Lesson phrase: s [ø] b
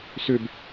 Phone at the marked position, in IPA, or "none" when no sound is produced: ø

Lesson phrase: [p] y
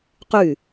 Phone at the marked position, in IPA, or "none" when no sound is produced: q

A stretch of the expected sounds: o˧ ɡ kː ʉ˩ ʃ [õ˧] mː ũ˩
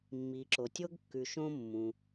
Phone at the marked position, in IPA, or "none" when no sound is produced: õ˧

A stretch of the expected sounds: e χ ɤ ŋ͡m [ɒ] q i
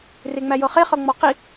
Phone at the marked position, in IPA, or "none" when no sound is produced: ɒ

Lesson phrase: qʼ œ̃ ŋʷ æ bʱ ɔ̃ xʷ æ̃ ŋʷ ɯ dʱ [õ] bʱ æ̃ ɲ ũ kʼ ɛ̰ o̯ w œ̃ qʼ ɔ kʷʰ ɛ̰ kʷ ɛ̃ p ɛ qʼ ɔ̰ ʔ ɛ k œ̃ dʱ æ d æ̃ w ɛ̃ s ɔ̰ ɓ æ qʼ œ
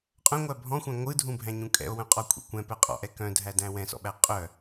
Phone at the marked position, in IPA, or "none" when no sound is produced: ũ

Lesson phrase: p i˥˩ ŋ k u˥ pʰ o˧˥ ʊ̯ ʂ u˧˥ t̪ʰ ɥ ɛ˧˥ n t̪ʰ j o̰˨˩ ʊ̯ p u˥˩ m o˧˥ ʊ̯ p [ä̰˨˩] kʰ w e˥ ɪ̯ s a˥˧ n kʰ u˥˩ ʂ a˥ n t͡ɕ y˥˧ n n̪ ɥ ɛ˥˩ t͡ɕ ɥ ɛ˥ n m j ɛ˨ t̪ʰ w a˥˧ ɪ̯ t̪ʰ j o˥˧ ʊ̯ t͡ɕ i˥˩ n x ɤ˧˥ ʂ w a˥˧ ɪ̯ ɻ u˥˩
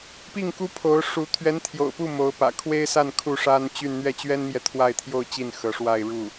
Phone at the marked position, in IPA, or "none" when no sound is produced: ä̰˨˩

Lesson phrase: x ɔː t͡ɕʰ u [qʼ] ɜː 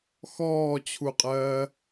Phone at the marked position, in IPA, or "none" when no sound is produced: qʼ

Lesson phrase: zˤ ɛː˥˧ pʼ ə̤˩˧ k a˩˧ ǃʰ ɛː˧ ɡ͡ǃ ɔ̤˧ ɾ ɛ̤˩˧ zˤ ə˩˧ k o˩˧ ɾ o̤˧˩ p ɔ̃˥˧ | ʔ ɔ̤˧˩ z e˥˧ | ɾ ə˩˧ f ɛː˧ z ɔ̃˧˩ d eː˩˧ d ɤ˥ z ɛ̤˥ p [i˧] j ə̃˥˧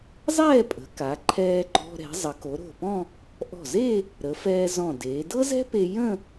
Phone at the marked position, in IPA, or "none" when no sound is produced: e˧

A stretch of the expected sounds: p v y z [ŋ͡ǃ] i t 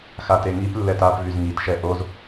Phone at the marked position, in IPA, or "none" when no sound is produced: ŋ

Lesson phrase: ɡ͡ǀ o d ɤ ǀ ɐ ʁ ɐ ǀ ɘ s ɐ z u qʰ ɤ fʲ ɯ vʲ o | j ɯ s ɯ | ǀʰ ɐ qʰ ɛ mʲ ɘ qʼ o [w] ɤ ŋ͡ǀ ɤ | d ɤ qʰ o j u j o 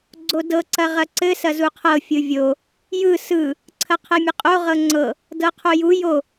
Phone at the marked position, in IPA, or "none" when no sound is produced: ʁ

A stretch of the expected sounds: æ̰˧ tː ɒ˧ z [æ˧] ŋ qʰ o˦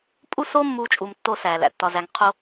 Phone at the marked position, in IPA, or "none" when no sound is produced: æ˧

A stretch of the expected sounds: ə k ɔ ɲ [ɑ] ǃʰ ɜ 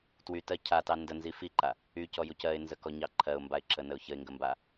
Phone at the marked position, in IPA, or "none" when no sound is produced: ɑ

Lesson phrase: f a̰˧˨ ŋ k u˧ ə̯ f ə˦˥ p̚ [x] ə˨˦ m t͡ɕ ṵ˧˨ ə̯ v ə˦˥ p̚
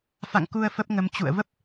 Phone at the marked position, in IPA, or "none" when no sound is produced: ŋ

